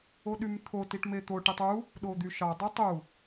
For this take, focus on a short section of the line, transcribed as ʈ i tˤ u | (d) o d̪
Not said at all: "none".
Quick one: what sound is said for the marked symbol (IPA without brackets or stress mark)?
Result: ɗ